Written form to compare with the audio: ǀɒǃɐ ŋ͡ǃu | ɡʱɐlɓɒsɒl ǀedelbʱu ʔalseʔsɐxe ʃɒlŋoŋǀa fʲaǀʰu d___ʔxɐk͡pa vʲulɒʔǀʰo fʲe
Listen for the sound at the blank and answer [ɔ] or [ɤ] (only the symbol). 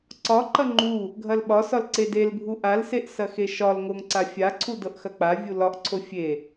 ɤ